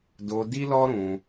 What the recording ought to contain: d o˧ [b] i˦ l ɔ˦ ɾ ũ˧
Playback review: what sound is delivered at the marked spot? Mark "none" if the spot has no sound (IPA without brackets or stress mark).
d